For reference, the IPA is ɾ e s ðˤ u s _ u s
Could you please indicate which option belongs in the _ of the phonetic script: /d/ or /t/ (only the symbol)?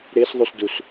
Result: d